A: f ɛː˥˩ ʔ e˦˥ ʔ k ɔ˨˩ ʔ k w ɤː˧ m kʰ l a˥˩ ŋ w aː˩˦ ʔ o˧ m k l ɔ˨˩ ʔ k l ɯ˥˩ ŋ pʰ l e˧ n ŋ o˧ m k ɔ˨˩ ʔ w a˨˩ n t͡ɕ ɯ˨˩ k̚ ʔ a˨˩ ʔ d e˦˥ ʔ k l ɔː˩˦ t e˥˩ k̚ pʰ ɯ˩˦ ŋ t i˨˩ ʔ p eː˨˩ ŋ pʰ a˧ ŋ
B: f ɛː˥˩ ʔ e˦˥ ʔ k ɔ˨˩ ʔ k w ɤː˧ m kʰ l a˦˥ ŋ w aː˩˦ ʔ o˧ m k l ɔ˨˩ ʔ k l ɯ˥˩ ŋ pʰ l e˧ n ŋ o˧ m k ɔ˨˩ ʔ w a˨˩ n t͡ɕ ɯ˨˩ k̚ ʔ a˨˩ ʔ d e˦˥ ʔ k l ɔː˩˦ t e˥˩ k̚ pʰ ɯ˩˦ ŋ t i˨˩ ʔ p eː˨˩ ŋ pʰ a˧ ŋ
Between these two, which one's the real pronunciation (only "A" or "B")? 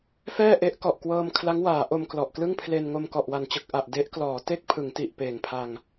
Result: B